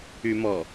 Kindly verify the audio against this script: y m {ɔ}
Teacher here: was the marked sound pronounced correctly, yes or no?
yes